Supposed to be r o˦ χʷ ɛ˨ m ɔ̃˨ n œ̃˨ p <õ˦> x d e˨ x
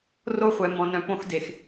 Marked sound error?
no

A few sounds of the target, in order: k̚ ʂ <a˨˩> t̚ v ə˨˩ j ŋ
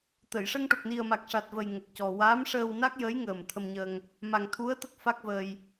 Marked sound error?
no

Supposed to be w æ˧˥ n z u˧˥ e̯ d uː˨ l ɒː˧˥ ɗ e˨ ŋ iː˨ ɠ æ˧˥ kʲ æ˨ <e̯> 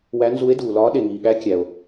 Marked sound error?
yes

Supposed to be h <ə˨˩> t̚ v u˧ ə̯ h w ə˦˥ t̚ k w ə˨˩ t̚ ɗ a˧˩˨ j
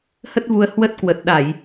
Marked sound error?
yes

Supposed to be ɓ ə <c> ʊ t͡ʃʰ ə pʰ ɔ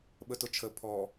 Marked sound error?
yes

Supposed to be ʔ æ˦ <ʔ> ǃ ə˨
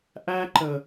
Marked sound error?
yes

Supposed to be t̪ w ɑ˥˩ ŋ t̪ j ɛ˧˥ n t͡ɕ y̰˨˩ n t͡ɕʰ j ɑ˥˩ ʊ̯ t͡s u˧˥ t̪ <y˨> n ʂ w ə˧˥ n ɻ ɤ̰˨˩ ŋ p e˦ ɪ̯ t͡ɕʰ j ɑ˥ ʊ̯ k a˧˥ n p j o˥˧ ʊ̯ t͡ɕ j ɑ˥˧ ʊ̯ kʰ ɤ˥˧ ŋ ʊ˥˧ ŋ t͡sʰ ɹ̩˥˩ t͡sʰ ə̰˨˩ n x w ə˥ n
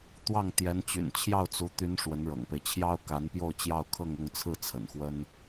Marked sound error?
yes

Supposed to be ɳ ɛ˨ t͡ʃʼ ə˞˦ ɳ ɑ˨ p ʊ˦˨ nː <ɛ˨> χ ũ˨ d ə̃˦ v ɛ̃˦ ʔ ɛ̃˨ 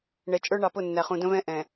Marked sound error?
yes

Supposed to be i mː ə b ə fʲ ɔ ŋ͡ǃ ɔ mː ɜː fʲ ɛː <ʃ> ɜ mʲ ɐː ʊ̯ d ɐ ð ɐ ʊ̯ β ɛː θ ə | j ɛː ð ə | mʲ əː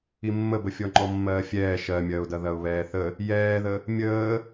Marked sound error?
no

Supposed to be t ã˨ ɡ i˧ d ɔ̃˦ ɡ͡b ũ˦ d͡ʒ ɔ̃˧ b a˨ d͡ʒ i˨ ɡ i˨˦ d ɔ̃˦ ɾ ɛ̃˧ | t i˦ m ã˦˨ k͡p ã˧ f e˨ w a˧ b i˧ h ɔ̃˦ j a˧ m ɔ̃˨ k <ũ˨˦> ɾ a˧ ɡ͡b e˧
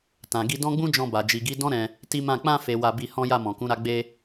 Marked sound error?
no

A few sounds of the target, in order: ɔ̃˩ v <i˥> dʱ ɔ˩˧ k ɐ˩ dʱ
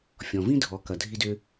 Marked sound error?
yes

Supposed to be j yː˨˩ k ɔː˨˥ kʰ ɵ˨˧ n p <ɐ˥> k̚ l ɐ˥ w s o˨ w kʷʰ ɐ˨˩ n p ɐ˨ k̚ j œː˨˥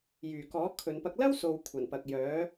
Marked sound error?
yes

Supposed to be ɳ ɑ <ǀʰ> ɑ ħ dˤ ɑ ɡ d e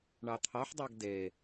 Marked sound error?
yes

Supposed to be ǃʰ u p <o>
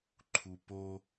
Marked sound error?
no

